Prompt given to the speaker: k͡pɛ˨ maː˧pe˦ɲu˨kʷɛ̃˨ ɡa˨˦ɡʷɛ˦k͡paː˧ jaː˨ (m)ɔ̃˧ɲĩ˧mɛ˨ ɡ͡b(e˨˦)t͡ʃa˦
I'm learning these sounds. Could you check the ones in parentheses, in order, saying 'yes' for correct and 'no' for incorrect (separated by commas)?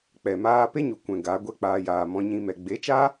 yes, yes